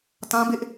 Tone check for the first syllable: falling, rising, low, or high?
high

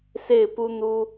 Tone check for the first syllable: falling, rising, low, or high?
falling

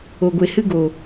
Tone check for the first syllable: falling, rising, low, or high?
low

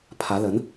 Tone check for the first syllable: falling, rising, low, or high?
rising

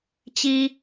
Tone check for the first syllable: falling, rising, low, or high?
high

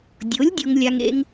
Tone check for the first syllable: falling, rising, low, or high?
rising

